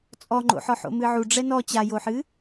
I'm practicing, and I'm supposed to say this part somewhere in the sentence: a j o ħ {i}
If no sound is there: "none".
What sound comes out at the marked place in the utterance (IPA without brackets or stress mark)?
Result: ɨ